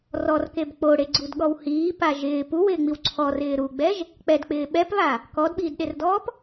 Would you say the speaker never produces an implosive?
no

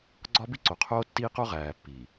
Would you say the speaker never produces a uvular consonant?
no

